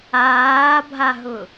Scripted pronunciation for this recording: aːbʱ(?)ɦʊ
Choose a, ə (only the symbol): a